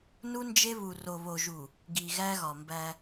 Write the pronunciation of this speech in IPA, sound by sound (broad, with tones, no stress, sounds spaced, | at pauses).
n u˦ n d͡ʒ e˦ β u˨ r o˨ β o˨ ʒ u˨ | ɡ i˨ ɣ æ˦ ɣ ɒ˨ m b æ˦